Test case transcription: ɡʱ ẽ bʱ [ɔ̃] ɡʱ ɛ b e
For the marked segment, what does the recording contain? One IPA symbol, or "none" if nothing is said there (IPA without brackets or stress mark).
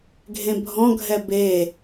ɔ̃